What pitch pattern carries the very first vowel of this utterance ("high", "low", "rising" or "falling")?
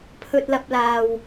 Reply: low